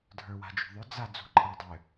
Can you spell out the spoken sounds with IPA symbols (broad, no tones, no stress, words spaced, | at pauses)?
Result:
dʱə˞wa̤d͡ʒṳðˤʏ d͡za d͡zṳǃʼadˤʏ